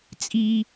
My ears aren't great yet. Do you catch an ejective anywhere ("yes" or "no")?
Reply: yes